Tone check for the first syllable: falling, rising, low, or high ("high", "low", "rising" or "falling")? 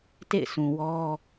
falling